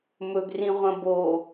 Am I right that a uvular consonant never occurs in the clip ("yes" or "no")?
no